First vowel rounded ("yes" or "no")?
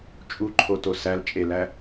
yes